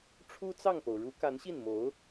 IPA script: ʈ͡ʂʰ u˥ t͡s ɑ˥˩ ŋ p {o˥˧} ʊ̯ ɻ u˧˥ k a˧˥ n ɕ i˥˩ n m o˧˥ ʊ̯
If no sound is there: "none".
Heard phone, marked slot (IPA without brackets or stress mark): o˩